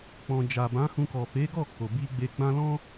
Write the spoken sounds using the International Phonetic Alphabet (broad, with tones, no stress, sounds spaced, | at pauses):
k͡p ɔ̃˨ d͡ʒ a˨ b ã˨˦ h ũ˧ k ɔ˨ f e˨˦ ɡ ɔ˦˨ k o˨ b i˧ ɡ͡b e˧ ɡ͡b ã˦ l ɔ̃˦